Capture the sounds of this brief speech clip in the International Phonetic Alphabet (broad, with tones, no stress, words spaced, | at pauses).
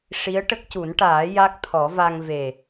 ʂi˧˥ə̯ʈə˦˥k̚cu˨˩˦nʈaː˨˩˦ ja˦˥k̚t̪ʰɔ˨˩˦va˧ŋ ve˨˩